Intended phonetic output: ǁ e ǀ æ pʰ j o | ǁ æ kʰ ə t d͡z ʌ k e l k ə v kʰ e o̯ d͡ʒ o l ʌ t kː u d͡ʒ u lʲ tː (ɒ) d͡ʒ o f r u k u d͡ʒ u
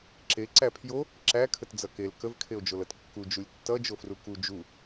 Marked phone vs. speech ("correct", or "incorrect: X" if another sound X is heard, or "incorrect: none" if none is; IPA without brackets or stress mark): incorrect: ʌ